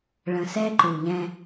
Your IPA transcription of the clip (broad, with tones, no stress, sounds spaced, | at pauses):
ɭ ə̃˨ s ɛ˦ ǃ u˨ ʎ ɛ̃˦